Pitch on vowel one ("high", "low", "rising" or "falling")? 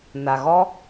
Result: low